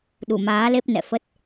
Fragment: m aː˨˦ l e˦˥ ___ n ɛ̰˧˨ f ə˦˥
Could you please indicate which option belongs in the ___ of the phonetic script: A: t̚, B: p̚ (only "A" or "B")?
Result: B